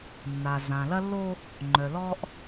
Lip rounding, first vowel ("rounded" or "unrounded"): unrounded